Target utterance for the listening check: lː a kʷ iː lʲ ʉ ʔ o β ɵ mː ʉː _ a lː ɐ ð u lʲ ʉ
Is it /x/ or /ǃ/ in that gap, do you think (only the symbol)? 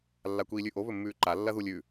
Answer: ǃ